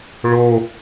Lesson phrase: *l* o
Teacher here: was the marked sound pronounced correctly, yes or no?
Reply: no